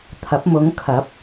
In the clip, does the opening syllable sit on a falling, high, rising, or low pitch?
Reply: rising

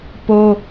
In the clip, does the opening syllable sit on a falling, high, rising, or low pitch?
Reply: high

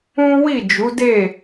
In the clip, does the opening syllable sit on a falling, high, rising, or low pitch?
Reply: high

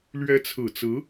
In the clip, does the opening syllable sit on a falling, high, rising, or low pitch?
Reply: rising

